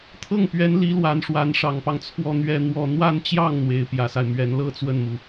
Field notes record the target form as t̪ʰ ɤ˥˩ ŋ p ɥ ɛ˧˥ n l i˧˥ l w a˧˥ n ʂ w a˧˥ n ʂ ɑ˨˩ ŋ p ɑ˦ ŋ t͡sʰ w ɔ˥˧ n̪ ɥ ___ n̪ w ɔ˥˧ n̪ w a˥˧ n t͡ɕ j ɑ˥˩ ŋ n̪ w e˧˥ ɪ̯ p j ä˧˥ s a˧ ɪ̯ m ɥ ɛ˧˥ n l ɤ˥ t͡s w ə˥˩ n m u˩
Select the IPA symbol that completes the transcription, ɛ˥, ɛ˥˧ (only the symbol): ɛ˥˧